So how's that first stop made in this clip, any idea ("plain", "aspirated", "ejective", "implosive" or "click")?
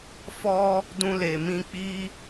plain